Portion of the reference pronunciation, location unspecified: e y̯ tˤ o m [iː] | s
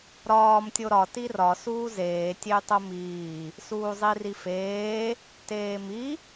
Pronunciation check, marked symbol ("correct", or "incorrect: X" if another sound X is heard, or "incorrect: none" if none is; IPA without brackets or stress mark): correct